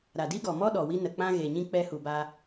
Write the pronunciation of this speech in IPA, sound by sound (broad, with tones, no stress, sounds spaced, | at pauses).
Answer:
ɾ a˨ d i˦ ɡ ɔ˨ m ɔ˦ ɗ ɔ˨ w i˧ n ə˨ k͡p ã˧ ɣ e˨ ɲ ĩ˧ k͡p ɛ˧ h u˨ b a˧